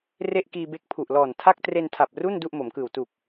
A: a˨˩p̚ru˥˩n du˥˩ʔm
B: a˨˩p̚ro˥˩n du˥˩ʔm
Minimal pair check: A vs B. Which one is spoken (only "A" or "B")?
A